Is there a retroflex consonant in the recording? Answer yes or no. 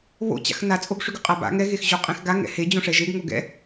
yes